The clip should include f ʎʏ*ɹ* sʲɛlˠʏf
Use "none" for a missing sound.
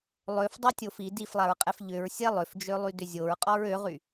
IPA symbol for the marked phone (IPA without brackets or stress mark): ɹ